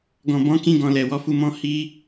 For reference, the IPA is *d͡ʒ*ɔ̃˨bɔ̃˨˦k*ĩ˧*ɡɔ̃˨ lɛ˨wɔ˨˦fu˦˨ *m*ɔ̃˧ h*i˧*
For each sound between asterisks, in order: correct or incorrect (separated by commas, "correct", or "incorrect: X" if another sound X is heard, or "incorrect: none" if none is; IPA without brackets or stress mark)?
incorrect: ɡ, correct, correct, correct